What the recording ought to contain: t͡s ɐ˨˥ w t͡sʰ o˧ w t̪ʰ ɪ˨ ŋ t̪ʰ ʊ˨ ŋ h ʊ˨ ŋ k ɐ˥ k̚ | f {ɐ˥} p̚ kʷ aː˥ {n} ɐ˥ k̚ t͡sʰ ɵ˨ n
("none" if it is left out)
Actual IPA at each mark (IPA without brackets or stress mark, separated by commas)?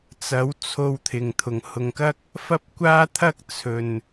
ɐ˥, t̪ʰ